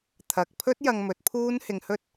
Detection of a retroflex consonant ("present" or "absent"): absent